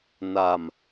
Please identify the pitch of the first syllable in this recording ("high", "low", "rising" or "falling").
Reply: low